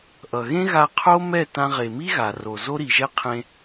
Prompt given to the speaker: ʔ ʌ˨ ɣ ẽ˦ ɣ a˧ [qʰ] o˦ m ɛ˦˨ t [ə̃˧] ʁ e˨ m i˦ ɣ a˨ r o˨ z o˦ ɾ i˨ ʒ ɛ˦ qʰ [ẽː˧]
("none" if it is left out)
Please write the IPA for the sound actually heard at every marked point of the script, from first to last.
qʰ, ã˧, ẽ˧

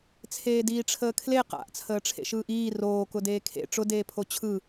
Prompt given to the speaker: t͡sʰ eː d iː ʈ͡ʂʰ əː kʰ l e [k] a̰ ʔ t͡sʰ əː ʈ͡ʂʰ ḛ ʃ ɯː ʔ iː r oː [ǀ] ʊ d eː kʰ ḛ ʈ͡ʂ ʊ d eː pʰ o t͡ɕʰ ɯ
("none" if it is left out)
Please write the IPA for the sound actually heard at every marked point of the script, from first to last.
q, k

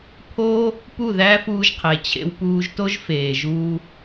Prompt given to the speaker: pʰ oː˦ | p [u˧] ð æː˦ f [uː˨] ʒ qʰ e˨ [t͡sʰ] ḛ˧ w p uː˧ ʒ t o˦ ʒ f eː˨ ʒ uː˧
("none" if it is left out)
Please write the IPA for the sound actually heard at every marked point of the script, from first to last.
u˦˨, uː˧, t͡ɕʰ

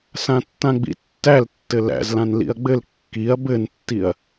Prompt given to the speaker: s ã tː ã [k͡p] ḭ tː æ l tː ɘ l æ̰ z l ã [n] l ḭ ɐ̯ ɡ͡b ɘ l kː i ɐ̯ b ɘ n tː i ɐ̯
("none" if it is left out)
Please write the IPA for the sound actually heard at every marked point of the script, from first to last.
ɡ͡b, n

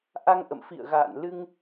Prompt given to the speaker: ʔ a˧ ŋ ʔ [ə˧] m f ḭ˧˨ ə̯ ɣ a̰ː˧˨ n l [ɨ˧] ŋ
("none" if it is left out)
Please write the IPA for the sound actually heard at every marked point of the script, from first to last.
ə̰˧˨, ɨ˧

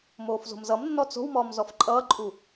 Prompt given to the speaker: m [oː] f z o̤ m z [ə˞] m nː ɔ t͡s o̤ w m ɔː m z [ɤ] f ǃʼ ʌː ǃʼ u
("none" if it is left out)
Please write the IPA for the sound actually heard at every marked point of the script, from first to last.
oː, ʌ, ɔ

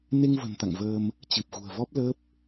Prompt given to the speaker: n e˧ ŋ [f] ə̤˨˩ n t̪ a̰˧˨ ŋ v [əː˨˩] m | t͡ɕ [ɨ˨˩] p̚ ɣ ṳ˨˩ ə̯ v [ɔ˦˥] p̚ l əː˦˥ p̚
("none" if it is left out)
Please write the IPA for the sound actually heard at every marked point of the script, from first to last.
v, əː˧, ɨ˨˩, ɔ˦˥

